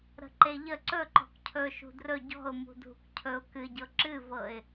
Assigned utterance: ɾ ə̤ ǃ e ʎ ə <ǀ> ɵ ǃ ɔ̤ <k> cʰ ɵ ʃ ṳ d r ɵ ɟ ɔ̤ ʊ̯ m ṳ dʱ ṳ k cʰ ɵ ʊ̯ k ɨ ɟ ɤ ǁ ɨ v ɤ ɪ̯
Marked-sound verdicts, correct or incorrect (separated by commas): correct, correct